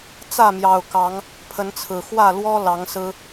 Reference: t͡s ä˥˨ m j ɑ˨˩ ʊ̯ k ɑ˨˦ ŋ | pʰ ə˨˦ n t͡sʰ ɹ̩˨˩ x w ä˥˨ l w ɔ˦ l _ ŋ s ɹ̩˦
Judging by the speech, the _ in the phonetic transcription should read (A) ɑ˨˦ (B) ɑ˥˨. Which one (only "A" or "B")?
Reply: A